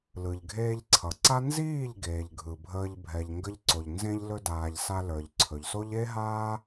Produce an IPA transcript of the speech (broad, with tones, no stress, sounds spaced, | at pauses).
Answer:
l ɯ˨ ʎ ɡʱ eː˧ ʎ ǀʰ ʌ˨ ǀ a˦ n z iː˦˨ ʎ ɡ eː˨ ʎ ɡʱ ɯ˨ bʱ əː˧ ʎ bʱ ɛ˨ ʎ ŋ ɡ ə˧ ʎ ǀ o˨ ʎ n z ẽ˧ ʎ l ɵ˧ d aː˨ ʎ s a˧ l ə˞˨ ʎ ǀʰ ɵ˨ ʎ s o˦ ʎ e˦ ɦ aː˦